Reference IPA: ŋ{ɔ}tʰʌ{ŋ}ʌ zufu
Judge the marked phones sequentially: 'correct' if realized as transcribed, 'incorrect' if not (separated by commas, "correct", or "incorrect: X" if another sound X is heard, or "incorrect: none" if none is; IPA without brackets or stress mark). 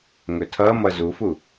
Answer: incorrect: ɵ, incorrect: m